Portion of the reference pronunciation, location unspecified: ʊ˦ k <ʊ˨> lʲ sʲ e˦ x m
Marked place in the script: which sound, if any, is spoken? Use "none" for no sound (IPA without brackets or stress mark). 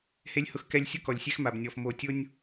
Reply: ɔ˨